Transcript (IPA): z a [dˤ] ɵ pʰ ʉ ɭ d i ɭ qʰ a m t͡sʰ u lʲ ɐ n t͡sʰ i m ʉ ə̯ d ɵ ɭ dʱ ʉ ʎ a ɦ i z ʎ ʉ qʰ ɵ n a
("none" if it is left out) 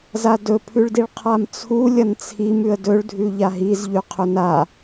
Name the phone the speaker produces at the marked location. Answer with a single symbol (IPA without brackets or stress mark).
d